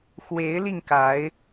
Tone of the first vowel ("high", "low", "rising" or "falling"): rising